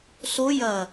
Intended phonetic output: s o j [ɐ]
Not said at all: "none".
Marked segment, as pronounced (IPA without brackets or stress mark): ɐ